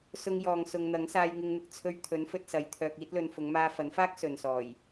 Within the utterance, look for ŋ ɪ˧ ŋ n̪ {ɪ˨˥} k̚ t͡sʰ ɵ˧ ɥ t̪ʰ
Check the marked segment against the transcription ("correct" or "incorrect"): incorrect